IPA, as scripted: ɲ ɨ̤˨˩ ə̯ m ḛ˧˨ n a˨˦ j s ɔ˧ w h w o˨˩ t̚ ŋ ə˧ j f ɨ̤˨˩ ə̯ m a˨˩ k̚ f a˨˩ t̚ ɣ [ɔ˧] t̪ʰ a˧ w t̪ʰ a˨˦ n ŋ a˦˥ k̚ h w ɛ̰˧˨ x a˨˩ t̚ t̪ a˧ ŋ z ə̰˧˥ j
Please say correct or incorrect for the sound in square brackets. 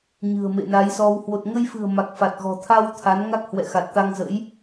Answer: incorrect